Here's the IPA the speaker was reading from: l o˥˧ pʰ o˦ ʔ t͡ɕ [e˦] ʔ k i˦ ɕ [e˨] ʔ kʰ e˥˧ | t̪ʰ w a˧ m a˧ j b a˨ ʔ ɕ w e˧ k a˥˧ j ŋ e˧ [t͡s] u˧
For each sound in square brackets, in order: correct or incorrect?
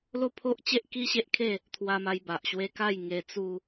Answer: correct, incorrect, correct

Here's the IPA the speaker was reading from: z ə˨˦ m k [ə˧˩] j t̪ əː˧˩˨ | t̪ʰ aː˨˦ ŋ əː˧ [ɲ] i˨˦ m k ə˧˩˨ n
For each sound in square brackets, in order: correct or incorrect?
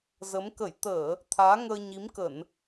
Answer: correct, correct

